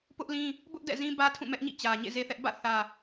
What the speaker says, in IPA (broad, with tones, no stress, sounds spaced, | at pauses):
p ʊ˦ ʔ l ĩ˦ | b ʊ˦ ʔ d ɛ̰˦˨ z ĩ˦ b ä˦ tʰ ũ˦˨ m ɛ˦ ʔ ɲ ḭ˦˨ t͡ɕ ä˨ ɲ ḛ˦˨ z e˦ θ ɛ˦ ʔ b ä̰˦˨ θ ä˨